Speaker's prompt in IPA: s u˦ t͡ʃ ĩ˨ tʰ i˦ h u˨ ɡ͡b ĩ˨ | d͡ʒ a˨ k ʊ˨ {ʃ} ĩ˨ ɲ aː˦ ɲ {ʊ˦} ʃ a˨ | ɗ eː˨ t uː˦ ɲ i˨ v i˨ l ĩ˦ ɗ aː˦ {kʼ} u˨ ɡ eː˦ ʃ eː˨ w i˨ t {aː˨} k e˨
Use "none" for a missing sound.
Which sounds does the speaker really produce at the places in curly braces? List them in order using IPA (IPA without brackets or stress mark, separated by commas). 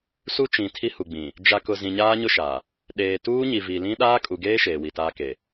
z, ʊ˦, kʼ, aː˦